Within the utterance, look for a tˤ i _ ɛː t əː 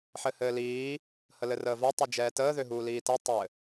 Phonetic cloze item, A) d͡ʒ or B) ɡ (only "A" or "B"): A